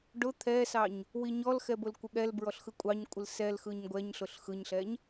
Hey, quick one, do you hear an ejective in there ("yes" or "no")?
yes